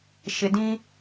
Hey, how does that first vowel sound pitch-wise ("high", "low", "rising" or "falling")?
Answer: low